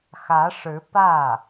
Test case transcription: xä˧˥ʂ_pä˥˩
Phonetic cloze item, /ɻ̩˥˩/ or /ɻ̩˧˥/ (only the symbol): ɻ̩˧˥